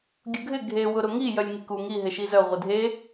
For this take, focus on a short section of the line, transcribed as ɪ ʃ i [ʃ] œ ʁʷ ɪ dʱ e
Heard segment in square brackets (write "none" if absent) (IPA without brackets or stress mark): z